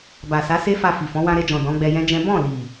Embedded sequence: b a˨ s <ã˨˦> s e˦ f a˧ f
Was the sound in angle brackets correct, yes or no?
no